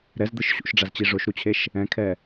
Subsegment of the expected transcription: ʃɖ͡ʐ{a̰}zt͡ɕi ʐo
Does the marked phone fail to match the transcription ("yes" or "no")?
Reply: yes